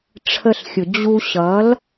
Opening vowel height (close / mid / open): mid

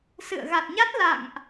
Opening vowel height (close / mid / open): close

